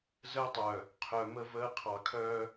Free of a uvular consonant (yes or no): no